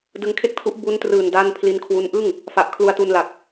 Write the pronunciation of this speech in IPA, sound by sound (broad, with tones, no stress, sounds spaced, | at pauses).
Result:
d ɯ˧ ŋ kʰ e˥˩ k̚ tʰ u˦˥ ʔ b u˦˥ n t r ɯː˨˩ n d a˥˩ n pʰ l i˦˥ n kʰ w u˦˥ n ʔ ɯ˥˩ ŋ | f a˨˩ ʔ kʰ l u˧ a̯ t u˧ n l a˨˩ k̚